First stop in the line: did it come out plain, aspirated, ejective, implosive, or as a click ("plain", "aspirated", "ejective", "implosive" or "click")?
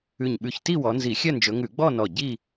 implosive